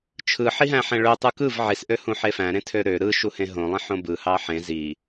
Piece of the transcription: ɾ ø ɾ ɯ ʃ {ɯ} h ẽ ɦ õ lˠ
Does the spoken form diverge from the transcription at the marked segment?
yes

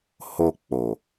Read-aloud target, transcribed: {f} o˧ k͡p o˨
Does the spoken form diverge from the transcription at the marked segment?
yes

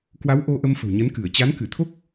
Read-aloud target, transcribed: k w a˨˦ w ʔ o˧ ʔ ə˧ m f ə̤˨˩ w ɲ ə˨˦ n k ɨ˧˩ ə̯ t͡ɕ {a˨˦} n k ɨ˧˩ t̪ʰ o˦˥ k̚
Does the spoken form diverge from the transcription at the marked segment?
no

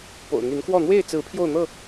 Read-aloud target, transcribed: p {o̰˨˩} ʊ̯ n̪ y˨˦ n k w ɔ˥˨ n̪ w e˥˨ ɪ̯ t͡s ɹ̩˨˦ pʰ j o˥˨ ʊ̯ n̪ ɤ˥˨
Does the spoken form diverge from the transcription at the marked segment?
no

